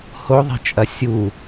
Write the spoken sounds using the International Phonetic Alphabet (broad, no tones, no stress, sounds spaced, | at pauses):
h o ðˤ i̤ t͡ʃʼ ɐ sʲ u